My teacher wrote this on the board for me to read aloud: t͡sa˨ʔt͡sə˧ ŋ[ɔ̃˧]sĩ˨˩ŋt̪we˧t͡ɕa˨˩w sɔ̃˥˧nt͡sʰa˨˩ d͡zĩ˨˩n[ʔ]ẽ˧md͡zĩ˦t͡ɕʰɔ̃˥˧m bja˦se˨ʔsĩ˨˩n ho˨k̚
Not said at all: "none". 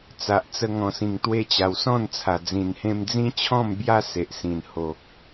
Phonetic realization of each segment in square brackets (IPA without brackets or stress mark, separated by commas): ɔ̃˨˩, h